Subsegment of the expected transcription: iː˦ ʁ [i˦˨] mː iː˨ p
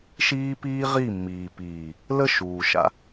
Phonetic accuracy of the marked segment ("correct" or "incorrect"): correct